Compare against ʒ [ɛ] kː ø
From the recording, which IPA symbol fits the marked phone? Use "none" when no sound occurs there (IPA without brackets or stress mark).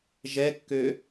ɛ